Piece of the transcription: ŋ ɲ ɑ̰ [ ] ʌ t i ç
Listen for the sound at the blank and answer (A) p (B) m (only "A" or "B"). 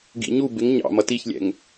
B